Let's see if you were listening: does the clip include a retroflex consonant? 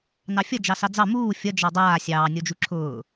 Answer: no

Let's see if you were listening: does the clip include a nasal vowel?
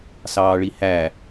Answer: no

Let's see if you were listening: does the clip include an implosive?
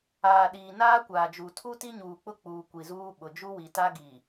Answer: yes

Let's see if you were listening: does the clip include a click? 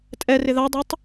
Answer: no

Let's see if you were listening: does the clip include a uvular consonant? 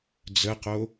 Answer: yes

